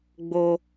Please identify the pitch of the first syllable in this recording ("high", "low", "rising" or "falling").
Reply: high